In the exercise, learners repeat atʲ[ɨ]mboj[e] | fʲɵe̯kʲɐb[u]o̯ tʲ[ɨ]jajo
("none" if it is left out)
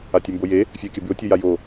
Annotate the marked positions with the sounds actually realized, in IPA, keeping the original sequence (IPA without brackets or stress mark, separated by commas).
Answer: ʉ, e, ʉ, ɨ